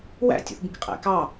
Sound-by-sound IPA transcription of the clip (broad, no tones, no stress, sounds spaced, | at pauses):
w æ̰ tʲ ṵ θ b ĩ k qʼ æ̰ k ɑ